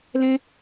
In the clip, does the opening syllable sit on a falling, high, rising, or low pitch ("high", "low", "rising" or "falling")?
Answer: high